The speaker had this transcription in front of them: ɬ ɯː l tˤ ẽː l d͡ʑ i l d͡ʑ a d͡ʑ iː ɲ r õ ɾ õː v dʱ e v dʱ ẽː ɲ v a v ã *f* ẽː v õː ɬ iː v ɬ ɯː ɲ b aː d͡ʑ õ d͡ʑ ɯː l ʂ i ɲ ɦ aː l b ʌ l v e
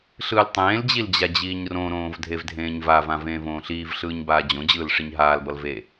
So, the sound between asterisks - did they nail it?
no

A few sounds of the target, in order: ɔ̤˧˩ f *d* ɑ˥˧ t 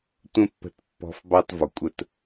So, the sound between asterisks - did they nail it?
no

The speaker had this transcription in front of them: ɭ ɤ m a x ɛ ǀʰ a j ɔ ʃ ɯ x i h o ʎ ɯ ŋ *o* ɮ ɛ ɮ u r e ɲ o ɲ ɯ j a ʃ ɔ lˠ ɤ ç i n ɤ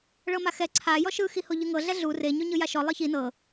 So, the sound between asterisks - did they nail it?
no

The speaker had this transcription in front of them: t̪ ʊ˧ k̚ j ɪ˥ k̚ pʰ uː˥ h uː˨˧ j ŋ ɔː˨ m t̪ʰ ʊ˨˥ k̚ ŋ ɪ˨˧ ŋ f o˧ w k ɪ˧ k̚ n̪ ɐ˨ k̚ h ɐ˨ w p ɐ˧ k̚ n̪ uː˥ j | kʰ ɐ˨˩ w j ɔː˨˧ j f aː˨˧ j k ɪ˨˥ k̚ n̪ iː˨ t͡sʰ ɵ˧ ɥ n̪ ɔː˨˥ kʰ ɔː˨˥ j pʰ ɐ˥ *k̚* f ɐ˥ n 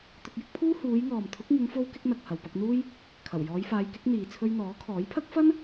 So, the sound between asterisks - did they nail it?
yes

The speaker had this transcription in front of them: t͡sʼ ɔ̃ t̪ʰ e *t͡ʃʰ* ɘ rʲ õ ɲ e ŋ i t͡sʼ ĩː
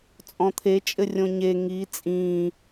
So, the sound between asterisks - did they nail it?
no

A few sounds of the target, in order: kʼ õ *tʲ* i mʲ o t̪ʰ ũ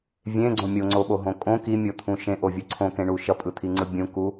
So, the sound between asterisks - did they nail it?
no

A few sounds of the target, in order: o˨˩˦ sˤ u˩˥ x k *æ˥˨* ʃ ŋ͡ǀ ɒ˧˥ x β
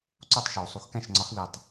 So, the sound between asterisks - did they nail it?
no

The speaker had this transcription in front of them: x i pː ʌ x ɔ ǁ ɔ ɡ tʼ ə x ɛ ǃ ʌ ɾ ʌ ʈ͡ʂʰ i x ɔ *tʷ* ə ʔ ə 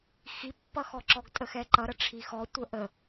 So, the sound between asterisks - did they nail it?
yes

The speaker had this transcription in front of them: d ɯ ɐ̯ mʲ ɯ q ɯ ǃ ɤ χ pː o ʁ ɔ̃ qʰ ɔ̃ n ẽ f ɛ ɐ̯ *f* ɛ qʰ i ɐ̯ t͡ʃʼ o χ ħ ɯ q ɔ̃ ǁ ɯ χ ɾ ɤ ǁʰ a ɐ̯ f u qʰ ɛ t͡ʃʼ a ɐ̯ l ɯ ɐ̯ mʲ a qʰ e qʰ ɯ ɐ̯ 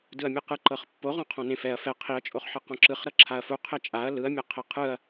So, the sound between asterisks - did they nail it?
yes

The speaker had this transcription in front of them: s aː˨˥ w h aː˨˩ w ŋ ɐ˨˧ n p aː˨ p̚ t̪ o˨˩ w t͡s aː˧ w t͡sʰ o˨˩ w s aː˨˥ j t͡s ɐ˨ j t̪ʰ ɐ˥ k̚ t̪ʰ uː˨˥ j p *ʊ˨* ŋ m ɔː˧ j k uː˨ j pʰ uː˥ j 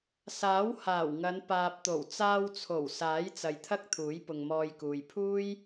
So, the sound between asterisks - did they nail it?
yes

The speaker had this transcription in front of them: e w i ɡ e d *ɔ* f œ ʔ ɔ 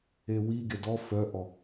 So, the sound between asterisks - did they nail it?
yes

